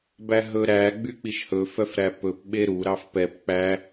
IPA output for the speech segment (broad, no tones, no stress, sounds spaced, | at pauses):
b æ ɦ ɵ ɾ æ ɡ͡b y k͡p i ʃ h ɵ f œ f ɾ æ p ɵ p ɓ e ɾ u ɾ ɑ f p ɛ p k͡p æ